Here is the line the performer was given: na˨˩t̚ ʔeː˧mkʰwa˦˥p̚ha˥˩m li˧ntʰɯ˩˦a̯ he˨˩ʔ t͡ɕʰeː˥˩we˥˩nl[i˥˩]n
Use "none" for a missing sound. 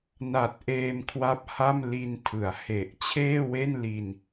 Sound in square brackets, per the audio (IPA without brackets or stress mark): i˧